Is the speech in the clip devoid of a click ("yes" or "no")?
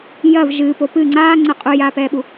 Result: no